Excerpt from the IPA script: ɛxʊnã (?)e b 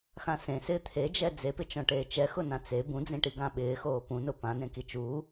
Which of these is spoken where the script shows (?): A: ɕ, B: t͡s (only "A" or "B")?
B